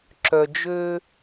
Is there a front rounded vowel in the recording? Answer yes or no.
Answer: yes